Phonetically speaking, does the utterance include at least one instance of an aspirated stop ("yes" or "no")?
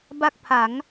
yes